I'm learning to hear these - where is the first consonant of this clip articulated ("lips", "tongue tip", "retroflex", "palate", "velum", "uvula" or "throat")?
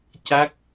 palate